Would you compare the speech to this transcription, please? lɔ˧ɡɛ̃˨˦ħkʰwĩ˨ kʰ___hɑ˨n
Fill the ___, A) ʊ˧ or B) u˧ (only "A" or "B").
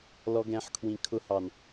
A